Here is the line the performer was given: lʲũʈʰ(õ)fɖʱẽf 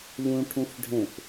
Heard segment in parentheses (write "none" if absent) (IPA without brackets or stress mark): ũ